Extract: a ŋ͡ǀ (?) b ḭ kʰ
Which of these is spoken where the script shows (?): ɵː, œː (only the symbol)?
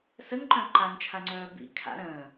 œː